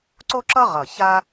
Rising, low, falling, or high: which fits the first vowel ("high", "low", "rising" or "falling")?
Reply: high